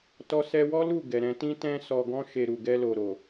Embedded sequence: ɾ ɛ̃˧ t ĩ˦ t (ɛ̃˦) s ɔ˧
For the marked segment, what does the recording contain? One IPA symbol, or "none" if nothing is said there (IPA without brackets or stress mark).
ɛ̃˦